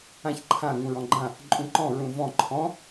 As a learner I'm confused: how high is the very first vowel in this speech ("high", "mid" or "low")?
low